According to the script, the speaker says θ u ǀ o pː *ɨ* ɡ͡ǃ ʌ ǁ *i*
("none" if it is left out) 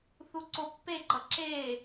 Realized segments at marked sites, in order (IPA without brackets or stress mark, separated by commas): e, e